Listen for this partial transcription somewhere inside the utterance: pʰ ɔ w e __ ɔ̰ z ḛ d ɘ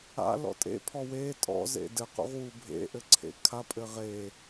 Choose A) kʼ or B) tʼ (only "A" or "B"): B